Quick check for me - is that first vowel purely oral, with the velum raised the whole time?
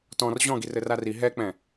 no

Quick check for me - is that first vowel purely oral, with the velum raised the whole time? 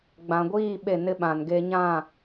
no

